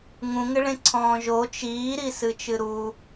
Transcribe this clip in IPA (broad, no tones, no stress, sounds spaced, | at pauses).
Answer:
ŋ ũ ŋ ɘ ɭ ẽ ǀʰ ɔ̃ː ʒ o t͡ʃ iː ɾ i s ɨ t͡ʃ ɨ ɾ u